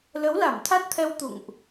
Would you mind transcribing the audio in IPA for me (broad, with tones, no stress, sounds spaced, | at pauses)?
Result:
l ə˨˦ w l a˧˩ m t̪ʰ a˦˥ t̚ t̪ʰ ɛ˧ w t̪ ṵ˧˨ ŋ ʔ